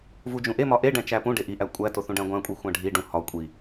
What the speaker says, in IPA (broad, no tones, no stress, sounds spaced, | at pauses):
v u d͡ʒ ũ ʔ e m ɒ ʔ e ɖ æ̃ t͡ʃ æ p ũ ɖ e ʔ i ʔ æ kʷʼ æ t o θ ũ ɖ æ̃ ɡʷ æ̃ kʷʼ i xʷ æ̃ ɖʱ i ɖ ũ h ɒ kʷʼ i